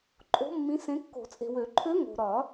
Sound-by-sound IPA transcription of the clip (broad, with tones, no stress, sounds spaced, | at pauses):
ǃʼ o̤˧˥ mː ĩ˧˥ s ẽ˧˥ kː o̤˨˩˦ t͡sʼ e̤˨ w ø˨˩˦ ǃʰ ø˧˥ ŋ o̤˨ ɾ ɒ˨˩˦